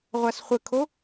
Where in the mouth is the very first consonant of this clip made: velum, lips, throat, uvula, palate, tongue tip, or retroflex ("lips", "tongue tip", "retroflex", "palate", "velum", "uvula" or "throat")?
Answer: uvula